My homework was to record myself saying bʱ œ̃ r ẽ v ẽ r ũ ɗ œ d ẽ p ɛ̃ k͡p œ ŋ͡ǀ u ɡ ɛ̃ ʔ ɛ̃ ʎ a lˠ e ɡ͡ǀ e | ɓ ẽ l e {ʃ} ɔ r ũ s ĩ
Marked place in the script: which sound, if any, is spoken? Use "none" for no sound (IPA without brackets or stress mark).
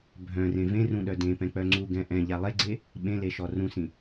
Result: ʃ